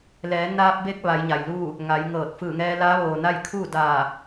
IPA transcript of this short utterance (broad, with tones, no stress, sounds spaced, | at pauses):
l ɛː˩˧ n aː˧ p̚ b e˧ k̚ ʋ a˩˧ j ɲ a˩ j l uː˥˨ | ŋ a˩˧ j ŋ ɤː˧˩ t̚ f ɯː˧˩ ŋ ɛː˧ l aː˧˥ ʋ oː˩ n a˥˨ j kʰ uː˥˨ d aː˧˩